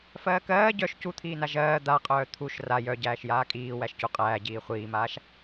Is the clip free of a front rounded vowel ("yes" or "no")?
no